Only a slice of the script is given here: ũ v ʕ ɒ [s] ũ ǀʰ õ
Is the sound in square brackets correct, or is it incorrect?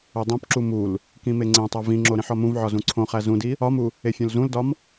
incorrect